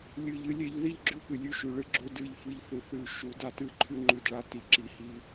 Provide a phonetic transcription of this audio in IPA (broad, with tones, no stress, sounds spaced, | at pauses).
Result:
lʲ ɨ˨ ʎ ɨ˦ lʲ e˦ ʎ ð i˦ ʎ ɡ͡ǁ ʉ˦ p ɨ˨ lʲ ʉ˦ ʃ ʉ˨ ɭ ɨ˦ ɡ͡ǁ o˦ d ɨ˦˨ ʎ f ɨ˦ ʎ θ ɨ˨ θ ʉ˦˨ ʃ u˨˦ d a˦ t ɨ˦˨ ǃʰ ʉ˦ ŋ͡ǃ ʉ˦˨ d ɭ a˦ t i˨ ǁ i˨ h i˦